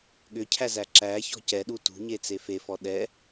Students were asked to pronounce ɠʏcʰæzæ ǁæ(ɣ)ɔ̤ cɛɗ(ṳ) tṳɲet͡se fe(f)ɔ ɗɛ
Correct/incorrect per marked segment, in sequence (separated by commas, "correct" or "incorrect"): incorrect, incorrect, correct